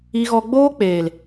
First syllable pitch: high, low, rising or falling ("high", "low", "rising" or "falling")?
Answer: high